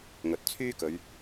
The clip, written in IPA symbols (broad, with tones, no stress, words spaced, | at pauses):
ŋɵ˨t̚ t͡sʰyː˥kɵ˨˧ɥ